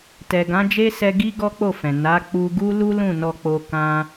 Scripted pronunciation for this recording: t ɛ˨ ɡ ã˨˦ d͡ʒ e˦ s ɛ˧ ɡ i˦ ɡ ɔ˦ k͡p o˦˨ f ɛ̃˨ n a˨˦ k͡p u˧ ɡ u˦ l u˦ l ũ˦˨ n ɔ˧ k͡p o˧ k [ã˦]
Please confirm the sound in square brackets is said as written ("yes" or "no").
yes